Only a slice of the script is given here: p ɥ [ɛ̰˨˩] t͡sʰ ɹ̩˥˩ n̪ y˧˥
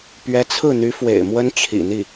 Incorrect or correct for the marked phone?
incorrect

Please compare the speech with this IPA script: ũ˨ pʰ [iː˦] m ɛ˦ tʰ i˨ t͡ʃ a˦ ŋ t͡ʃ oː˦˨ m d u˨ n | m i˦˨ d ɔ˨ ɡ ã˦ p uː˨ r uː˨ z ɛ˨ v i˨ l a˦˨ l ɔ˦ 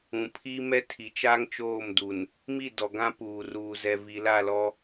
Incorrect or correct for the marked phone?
correct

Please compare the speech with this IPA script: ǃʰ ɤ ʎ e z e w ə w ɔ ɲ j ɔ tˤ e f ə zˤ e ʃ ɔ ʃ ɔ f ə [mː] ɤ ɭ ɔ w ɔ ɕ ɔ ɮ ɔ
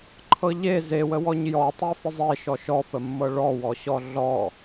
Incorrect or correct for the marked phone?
correct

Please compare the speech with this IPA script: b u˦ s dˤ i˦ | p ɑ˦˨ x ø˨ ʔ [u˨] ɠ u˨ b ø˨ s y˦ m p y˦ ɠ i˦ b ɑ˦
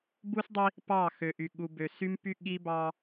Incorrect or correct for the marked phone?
incorrect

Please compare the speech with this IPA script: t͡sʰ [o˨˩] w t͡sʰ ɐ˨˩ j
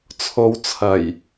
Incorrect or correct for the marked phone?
incorrect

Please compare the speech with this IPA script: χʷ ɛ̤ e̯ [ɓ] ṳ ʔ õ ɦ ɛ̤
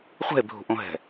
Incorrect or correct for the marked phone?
incorrect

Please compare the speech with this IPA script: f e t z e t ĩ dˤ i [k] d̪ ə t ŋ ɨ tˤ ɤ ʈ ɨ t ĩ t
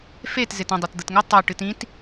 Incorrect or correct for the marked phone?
incorrect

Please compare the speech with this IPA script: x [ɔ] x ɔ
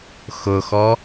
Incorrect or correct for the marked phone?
incorrect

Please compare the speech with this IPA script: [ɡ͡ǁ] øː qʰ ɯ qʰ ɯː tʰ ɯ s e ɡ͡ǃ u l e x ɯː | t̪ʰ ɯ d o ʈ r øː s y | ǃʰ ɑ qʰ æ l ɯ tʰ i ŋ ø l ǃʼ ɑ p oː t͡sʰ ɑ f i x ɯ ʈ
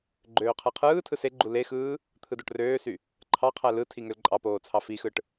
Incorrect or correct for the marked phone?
incorrect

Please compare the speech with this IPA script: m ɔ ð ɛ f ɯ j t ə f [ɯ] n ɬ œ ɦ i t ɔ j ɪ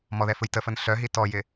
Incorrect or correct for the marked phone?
incorrect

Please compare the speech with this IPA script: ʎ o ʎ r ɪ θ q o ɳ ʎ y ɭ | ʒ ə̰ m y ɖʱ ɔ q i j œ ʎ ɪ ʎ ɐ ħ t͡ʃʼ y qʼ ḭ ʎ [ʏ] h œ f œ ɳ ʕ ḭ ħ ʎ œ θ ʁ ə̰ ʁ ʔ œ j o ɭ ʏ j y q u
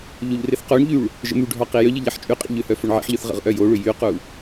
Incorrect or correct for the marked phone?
correct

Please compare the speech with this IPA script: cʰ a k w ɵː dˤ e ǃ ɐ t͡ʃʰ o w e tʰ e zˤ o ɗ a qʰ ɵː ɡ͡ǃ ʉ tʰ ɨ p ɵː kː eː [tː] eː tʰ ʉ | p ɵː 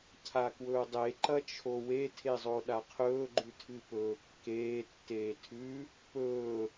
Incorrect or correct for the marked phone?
correct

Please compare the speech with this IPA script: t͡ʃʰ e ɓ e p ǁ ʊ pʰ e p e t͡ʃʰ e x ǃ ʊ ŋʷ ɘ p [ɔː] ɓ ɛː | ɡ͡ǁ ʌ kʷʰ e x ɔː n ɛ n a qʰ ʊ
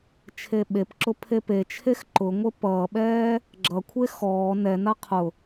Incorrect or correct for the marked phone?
incorrect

